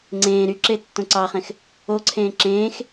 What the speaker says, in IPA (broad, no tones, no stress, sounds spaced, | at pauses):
ŋ͡ǀ ẽː ɾ y ǁ e tː õ ǀ ɑ χ ẽ x | o ǀʰ ẽː ǁ ẽː x